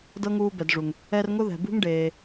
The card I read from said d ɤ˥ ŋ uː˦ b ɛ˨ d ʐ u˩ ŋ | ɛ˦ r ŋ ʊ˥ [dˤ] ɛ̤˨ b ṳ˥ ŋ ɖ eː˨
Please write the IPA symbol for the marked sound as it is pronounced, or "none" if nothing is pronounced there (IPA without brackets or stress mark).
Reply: ð